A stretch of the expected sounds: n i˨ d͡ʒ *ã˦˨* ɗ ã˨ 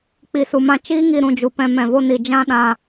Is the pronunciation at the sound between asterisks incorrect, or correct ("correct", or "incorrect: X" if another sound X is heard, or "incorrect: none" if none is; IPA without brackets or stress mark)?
incorrect: ã˧